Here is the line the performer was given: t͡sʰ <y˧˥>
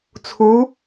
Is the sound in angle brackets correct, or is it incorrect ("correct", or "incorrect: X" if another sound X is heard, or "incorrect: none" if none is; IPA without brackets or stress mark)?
incorrect: u˧˥